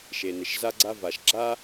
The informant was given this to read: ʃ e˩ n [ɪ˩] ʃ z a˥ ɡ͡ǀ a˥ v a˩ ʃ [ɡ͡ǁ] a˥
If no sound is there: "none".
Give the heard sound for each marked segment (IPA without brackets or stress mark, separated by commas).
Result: ɪ˩, ɡ͡ǁ